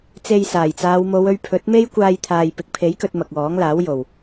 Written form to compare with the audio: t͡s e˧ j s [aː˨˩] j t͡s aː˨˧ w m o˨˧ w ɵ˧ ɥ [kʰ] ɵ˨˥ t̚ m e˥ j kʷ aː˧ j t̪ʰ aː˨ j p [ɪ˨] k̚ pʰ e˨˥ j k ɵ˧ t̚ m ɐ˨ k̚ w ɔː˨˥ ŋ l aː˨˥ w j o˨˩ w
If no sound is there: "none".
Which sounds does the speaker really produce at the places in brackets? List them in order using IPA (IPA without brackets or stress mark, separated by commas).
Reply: aː˨˩, pʰ, ɪ˨˥